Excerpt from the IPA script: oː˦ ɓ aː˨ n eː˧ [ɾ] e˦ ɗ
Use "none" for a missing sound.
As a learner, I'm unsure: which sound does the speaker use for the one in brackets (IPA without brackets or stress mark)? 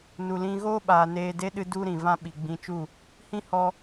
d